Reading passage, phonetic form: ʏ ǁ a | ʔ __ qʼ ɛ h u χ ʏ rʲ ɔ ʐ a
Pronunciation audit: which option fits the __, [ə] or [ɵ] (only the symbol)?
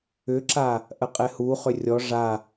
ə